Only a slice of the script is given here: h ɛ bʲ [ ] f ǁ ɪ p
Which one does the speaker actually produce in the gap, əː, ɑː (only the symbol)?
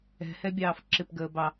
ɑː